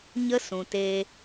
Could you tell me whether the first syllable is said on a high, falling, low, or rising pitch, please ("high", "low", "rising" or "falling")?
high